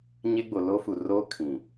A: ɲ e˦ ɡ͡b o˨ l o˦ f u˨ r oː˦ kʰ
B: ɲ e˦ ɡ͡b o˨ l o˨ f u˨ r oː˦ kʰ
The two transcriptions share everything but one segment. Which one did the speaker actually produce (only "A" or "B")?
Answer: A